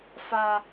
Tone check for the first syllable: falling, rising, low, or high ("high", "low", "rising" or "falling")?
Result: high